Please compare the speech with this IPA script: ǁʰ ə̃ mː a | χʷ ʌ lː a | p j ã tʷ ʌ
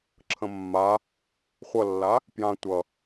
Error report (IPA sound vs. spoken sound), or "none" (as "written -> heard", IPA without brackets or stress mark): none